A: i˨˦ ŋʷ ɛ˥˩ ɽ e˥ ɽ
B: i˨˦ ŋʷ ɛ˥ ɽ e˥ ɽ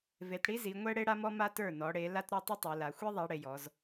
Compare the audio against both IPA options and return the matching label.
B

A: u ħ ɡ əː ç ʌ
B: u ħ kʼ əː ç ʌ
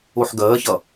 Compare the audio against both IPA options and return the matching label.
A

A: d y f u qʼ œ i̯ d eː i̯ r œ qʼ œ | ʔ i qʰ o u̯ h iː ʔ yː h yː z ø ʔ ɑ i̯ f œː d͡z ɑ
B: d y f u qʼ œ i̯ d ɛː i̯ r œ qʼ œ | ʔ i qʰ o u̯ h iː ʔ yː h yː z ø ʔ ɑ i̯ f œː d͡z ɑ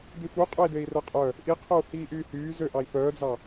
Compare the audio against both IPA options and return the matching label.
A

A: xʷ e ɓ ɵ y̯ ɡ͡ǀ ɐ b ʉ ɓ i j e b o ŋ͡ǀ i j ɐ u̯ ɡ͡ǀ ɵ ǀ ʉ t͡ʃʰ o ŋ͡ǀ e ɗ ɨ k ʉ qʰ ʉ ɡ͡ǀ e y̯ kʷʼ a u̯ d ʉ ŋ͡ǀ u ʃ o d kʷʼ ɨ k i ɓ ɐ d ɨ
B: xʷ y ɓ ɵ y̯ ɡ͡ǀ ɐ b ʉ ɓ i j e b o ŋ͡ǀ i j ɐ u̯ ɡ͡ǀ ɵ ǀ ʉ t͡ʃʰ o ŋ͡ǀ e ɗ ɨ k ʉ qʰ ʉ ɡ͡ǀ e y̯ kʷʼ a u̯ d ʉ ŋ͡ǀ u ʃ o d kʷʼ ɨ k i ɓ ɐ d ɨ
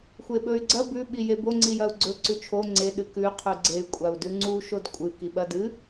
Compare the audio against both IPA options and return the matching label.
A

